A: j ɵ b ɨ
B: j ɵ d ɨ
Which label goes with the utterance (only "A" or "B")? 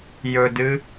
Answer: B